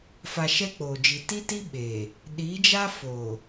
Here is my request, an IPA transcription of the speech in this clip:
f a˨ ʃ ɛ˦ k͡p oː˨ d͡ʒ i˨ t i˦ t i˦ ɓ eː˨ | ɗ i˨˦ d͡ʒ a˦ f o˨

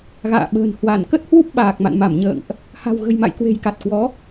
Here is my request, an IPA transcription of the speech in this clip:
ɣ a̰ː˧˨ ɓ ə̤ː˨˩ n h w a˧˩ n k ə˦˥ t̚ h w u˦˥ p̚ ɓ aː˨˩ k̚ m a̰˧˨ n m a˧˩ m ɲ ə̰ː˧˨ ŋ ʔ | h a̤˨˩ w ɣ ə̤˨˩ j m a̰˧˨ j k w e̤˨˩ j k a˨˩ t̚ k w ɔ˨˦

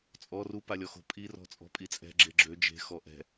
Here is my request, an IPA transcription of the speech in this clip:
t͡sʼ ɔ r u p a lʲ ɔ x o̤ pʼ i r ɔ̤ t͡sʼ ɔ̤ pʼ i t͡sʼ ɛ̤ ɡ͡ǁ e ɡ͡ǁ ø d͡ʒ e̤ x ɔ ʔ ɛ̤

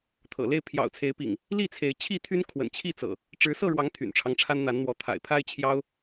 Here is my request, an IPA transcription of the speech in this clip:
t̪ʰ ɤ̰˨˩ l e˥˨ ɪ̯ pʰ j ɑ̰˨˩ ʊ̯ t͡sʰ e˨˦ ɪ̯ p ḭ˨˩ ŋ | l i˥˨ t͡sʰ e˨˦ ɪ̯ t͡ɕʰ i˥˨ t̪ʰ y˦ n kʰ w ə̰˨˩ n t͡ɕʰ i˥˨ t͡s ɤ̰˨˩ | ʈ͡ʂ ɻ̩˨˦ s ɤ˥˨ ɻ w ɑ˨˦ ŋ t̪ʰ y̰˨˩ n ʈ͡ʂʰ ɑ˦ ŋ ʈ͡ʂʰ a˦ n n̪ a˨˦ n n̪ w ɔ˨˦ t̪ʰ a̰˨˩ ɪ̯ pʰ a˦ ɪ̯ t͡ɕʰ j ɑ˦ ʊ̯

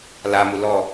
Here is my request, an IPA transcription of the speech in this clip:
l a m u l ɔ

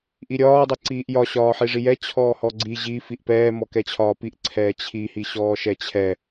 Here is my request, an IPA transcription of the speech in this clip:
ʔ i ɾʲ ɒː dˤ ɛ ǀ iː ʔ j ɒ ɕ ɒː ħ i ʐ i j ɛ t͡ɕʰ ɔː h ɔ ɡ͡ǀ i ʑ i f i ʔ p ɛː m ɔ k ɛ t͡ɕʰ ɒː p i ʔ ǀʰ ɛː t͡ɕʰ i h i ɕ ɔː ʃ ɛ t͡ɕʰ ɛ

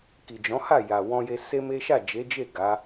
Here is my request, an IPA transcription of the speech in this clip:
k i˨ d͡ʒ ɔ̃˨˦ h a˦˨ j a˨ w ɔ̃˧ j e˧ s e˦ m e˦ ʃ a˦˨ d͡ʒ e˨˦ d͡ʒ e˦˨ ɡ a˨˦

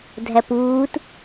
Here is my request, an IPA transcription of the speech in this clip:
dʱ æ p uː t

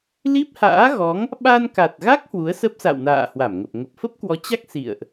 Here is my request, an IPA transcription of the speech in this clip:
l i˦˥ p̚ h a̰ː˧˥ ɣ ɔ˨˦ ŋ | ɓ a˧ n k a˨˩ t̚ ɣ a˦˥ k̚ h w u˨˦ ə̯ s ə˦˥ p̚ s a̰˧˨ w n a̰ː˧˨ h w a˧˩ m ŋ ə˨˩ p̚ ŋ ə˨˩ p̚ f ə˦˥ p̚ k w ɔ˨˦ t͡ɕ a˦˥ k̚ s ḭ˧˨ ə̯ ʔ

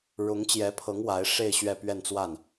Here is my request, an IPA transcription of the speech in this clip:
ɻ ʊ˧˥ ŋ t͡ɕ j ɛ˧˥ pʰ ɤ˧˥ ŋ w a˧˥ ɪ̯ ʂ e˥˧ ɪ̯ ɕ ɥ ɛ˥˧ p ɥ ɛ˥˧ n t͡s w a˥˩ n

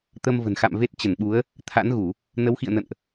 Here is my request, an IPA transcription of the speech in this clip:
t̪ ə˧ m v ə̤˨˩ n x a̰˧˨ m v e˦˥ t̚ t͡ɕ ə˧˩ n ɓ u˨˦ ə̯ | t̪ʰ a̰˧˥ n ɣ u˧˩˨ | n ə˨˦ w x ḭ˧˨ ə̯ n ə̰˧˨ n ʔ

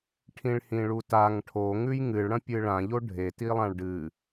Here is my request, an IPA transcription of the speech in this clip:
ʈʰ ĩ ɭ h ĩ ɭ u t a ŋ ʈʰ o ŋ ʉ j ŋ ɨ ɭ ɽ ɐ̃ pʲ ɨ ɭ ã ʎ o ɖʱ e t i lˠ ã ɭ ɖ ɨ

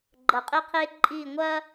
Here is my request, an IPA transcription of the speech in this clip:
ɡ͡ǃ ɐ˧˩ qʼ e˥ qʰ e˥ ǃʼ i˥˧ ŋʷ ɐ˥

